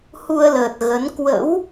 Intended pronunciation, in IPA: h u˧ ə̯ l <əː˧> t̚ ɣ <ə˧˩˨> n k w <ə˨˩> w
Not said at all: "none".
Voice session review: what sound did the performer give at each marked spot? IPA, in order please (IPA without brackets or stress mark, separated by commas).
əː˨˩, ə˨˦, ə̰˧˥